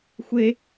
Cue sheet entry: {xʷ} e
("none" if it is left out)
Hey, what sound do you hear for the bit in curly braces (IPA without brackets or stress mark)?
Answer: xʷ